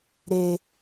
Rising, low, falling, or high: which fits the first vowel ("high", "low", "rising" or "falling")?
low